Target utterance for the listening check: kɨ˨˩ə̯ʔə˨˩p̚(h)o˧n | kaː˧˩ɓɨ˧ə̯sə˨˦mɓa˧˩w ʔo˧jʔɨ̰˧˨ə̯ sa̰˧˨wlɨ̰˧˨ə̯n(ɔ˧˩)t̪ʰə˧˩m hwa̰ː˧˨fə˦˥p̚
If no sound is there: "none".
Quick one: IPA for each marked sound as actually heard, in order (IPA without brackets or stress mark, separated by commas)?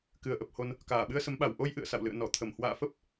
h, ɔ˧˩